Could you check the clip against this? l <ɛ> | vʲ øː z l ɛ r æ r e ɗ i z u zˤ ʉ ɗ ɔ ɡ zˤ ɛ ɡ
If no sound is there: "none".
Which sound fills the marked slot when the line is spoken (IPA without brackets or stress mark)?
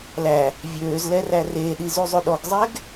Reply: æ